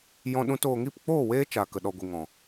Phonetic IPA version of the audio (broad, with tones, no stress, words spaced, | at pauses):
jɔ̃˧ɗũ˧t oː˨ŋi˦˨pk͡poː˦˨ weː˦t͡ʃa˨ kə˨ɗɔ˨ɡʷi˨ ŋɔ̃˨